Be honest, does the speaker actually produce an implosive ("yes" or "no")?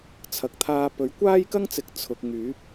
no